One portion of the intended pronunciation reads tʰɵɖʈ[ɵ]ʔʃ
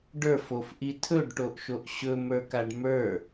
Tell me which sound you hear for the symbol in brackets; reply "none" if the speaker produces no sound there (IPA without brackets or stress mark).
o